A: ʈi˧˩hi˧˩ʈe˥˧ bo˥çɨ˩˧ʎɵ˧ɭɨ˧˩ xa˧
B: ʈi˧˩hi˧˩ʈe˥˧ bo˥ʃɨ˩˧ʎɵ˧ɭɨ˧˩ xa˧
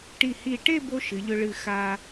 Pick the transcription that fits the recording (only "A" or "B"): B